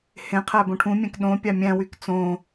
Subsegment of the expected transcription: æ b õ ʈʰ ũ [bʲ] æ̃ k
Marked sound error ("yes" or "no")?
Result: yes